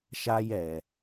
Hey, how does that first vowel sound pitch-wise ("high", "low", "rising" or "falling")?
high